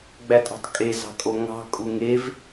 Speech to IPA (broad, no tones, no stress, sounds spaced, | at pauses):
ɡ͡b æ tʼ ɑ̤ tˤ kʼ e z ɑ̤ kʼ o ŋ ɑ̤ kʼ u ŋ e v